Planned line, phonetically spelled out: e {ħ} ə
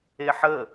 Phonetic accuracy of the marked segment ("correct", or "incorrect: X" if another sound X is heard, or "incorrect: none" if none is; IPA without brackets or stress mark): correct